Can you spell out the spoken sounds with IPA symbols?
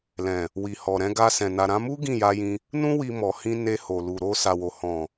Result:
lɛ̃˨ | wi˨hɔ˨ɾɛ̃˧ ɡa˧sɛ̃˨ na˨ɾã˧mu˦ ɡĩ˦˨ja˧jĩ˧ | nũ˦ wi˧mɔ˨hĩ˧ ne˧ho˨lu˨ ɾo˧sa˨wo˨ hɔ̃˨

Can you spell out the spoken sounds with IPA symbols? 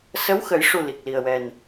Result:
sə˧˥wxə˨˩˦jʂu˨˩ li˨˩k̚li˨˩ə̯wɛ˨˩n

